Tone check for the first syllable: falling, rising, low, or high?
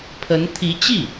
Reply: rising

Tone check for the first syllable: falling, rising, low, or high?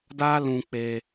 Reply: high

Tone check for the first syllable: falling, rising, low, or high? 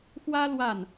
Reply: high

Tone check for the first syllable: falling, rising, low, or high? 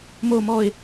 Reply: high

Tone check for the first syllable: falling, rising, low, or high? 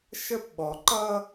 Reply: high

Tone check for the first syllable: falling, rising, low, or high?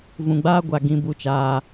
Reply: low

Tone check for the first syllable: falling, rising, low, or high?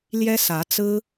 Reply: high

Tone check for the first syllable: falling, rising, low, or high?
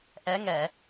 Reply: rising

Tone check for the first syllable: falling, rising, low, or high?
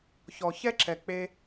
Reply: low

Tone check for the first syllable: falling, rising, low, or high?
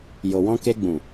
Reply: low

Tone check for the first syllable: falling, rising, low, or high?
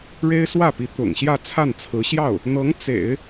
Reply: high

